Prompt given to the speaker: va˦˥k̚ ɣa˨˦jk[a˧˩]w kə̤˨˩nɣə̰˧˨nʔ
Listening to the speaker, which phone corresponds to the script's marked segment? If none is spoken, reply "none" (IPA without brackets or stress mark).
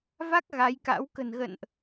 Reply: a̰˧˥